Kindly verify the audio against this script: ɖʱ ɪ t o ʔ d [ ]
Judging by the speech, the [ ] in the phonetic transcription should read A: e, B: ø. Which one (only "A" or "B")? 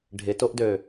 B